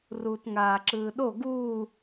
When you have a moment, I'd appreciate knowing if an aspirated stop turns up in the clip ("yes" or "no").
no